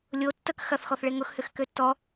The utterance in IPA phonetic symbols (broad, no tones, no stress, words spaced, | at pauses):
lʲo tːək xɐθxɔθɭe ŋʊxhʏxkø tːɔ